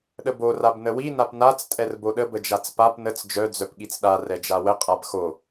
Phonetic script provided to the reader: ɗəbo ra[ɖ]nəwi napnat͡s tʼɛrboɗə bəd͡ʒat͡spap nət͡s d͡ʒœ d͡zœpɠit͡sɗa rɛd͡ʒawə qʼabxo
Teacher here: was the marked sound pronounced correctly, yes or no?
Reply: no